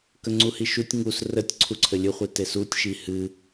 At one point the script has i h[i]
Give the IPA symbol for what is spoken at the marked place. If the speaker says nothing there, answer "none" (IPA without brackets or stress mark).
ɨ